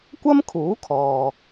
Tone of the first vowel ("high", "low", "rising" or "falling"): high